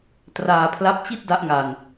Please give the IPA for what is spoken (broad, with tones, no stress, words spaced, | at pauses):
traː˧pʰla˦˥p̚t͡ɕi˥˩t̚ da˥˩ʔŋa˧n